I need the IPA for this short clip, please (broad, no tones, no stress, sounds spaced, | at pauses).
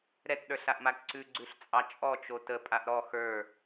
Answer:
ɾ ɛ t ɗ ə˞ ɬ a ʔ m a ǀ ʉ ɡ͡ǀ ʉ ɬ t͡sʼ ɑ t͡ʃʼ ɔ t͡ʃ o t ə pʼ a ʔ ɾ ɔ x ə˞